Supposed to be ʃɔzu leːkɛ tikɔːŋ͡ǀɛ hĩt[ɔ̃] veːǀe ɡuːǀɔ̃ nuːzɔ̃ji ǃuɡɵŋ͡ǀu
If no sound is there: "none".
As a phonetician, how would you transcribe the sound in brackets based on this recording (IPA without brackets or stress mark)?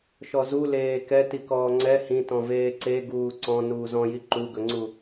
ɔ̃